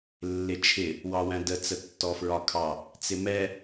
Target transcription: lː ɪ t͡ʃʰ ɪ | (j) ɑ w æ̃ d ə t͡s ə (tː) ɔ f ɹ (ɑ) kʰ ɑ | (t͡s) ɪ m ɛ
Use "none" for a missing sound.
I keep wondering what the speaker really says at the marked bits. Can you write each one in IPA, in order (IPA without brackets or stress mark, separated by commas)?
w, tː, ɒ, t͡s